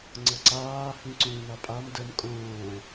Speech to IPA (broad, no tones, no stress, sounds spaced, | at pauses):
ŋ͡ǀ ɤ ǀ aː h ĩ ǀ ũː n a pʼ a m d ə m kʼ õː